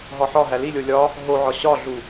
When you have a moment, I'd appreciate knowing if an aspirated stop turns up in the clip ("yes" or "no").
no